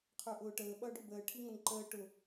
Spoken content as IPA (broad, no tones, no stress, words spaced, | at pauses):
qʰə˞ʔʊːʈəː ɓʌːɖʊbəː ʈʰiŋʌnǃəː ʈʊ